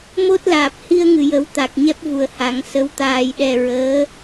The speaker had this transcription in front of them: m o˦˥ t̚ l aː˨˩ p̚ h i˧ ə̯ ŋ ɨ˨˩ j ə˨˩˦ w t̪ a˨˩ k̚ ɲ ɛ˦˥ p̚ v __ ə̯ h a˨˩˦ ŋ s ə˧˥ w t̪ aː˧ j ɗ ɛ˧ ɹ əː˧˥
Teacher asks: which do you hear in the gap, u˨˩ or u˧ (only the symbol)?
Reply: u˨˩